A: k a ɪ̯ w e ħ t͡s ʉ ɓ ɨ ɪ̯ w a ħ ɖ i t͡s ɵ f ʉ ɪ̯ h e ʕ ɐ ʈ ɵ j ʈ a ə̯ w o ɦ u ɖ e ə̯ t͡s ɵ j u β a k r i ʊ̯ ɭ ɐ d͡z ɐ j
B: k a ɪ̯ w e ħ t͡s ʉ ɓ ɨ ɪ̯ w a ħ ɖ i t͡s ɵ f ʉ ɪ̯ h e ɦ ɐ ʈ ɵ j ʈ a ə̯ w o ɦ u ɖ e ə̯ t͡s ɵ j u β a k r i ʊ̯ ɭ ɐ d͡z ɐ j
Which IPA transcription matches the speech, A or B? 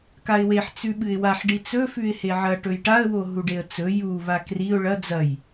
A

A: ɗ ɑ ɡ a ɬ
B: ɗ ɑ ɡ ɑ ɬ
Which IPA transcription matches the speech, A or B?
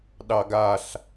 A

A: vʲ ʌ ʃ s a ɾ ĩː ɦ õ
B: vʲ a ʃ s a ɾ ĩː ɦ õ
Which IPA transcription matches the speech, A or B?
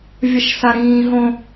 A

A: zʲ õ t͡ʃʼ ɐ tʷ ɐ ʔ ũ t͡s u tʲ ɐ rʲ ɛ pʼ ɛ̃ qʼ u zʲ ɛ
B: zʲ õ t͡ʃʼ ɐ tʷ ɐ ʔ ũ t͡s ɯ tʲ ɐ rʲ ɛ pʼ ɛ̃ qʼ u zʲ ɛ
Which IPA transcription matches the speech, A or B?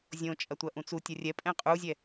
A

